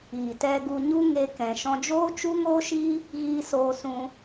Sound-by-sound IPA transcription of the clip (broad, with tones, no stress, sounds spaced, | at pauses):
iː˨ t ɛ˧ ɡ u˧ ɲ u˦ ŋ e˦ k ɛ̃˧ ʃ ɔ̃˦ d͡ʒ oː˦ t͡ʃ u˦ ŋ oː˦ ʃ iː˦ | ɣ iː˧ s oː˧ s ũ˧